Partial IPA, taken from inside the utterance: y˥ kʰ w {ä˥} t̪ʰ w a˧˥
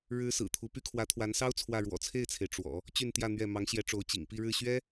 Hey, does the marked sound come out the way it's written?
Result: no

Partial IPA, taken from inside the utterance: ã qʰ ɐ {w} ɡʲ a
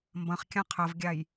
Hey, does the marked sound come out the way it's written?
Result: no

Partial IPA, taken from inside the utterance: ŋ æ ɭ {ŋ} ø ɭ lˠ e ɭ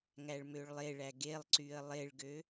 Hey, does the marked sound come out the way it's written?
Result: no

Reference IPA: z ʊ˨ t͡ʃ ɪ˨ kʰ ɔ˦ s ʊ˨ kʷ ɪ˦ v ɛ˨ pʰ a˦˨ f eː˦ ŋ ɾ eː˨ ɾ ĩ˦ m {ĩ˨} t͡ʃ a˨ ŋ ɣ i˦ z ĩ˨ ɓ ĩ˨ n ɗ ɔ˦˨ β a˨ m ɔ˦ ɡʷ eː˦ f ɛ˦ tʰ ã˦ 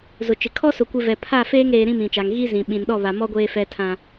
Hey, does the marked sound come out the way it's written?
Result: yes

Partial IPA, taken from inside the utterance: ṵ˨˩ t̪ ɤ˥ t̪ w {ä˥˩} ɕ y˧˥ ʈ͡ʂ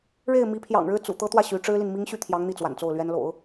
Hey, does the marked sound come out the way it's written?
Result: yes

